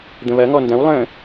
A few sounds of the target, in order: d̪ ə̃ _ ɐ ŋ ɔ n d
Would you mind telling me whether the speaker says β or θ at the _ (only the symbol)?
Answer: β